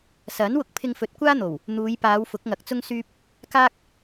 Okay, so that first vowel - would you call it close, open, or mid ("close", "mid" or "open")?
open